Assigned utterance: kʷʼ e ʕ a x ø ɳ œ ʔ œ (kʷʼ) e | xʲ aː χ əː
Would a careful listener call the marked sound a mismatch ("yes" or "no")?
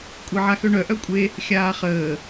no